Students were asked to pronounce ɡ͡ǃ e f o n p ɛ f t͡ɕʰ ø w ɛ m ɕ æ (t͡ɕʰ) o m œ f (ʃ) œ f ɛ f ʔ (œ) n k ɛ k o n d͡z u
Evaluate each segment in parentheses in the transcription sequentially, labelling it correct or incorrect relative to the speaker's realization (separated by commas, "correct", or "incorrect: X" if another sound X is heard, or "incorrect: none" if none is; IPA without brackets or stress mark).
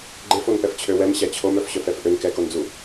correct, incorrect: ɕ, incorrect: ø